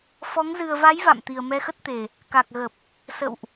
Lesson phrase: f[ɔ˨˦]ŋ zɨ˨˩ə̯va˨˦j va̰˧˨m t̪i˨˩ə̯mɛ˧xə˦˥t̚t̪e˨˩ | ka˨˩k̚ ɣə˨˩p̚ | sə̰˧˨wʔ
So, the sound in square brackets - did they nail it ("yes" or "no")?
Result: yes